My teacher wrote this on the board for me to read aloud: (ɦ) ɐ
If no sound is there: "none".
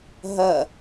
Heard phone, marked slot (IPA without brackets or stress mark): ɦ